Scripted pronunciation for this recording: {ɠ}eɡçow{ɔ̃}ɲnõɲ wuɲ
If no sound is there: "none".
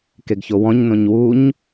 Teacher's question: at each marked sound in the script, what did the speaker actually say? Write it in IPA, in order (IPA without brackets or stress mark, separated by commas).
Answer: k, ɔ̃